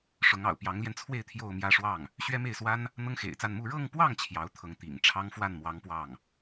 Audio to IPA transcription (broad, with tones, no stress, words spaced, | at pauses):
ʂʊ˧˥ŋɑ̰˨˩ʊ̯ pjɑ˧˥ŋljɛ˧nt͡sʰwe˥˧ɪ̯ t̪ʰjo˥˧ʊ̯mjä˥˧ʂwɑ˥˩ŋ | ɕɥɛ˥me˥˩ɪ̯swa˥n | n̪ɤ˥ŋxḛ˨˩ɪ̯t͡sa˥˧n mu˥˧ ɻɤ˥˧ŋpwɑ˥˩ŋ t͡ɕʰjɑ˧˥ʊ̯t̪ʰɤ˧˥ŋt̪ḭ˨˩ŋʈ͡ʂʰɑ˥ŋ fwa˥˩nmwɑ˧˥ŋ pwɑ˥˩ŋ